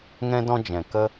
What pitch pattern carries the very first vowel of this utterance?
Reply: high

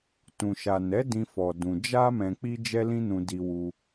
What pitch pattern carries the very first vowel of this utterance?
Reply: low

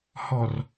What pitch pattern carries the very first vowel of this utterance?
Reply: low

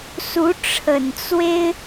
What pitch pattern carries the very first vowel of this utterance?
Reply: rising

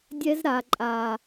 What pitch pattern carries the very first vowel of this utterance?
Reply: high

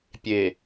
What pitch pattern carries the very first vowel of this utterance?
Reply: low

